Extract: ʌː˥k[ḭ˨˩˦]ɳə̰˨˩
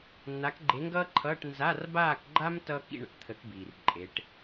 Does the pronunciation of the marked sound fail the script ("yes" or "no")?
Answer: yes